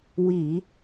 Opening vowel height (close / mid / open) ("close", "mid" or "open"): close